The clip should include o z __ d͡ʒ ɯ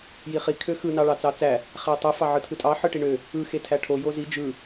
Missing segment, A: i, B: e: A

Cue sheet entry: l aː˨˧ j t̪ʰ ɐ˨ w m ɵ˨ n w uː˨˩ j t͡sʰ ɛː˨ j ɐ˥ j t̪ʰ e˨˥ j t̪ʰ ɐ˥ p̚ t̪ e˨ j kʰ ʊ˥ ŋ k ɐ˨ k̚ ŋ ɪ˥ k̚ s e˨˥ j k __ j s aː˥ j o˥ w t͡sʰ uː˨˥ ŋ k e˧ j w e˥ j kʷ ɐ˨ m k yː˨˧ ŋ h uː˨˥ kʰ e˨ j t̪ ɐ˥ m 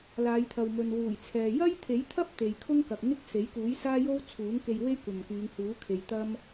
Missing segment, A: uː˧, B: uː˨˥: B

